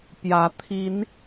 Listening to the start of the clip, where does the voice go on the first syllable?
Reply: rising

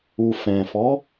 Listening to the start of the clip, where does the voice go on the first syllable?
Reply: low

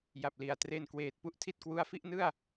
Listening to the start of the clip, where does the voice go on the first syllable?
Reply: low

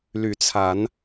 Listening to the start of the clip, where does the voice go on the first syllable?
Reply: rising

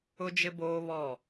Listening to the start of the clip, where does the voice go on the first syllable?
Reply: high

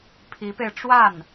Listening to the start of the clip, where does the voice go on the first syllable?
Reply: rising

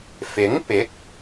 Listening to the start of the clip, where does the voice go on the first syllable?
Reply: rising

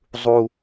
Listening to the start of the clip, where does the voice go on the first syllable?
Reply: high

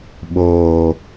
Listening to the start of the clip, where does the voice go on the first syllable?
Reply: low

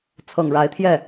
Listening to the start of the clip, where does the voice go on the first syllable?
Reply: low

